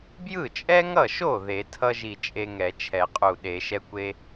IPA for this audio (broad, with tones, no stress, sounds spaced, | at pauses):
b j ɯ˥˩ t͡ʃʼ ɛ˥ ŋ ʌ˥˩ ʃ o˥˩ ð e˨˩˦ tʰ ʌ˥ ʒ i˧˩ t͡ʃʼ e˥ ŋ ɛ˨˩˦ t͡ʃʰ ɛ˨˩˦ qʼ u˧˩ ɗ e˨˩˦ ʃ ɛ˥ kʷ e˥